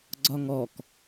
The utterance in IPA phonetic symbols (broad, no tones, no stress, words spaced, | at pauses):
ɡ͡ǀɒŋɔk